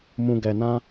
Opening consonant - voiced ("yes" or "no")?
yes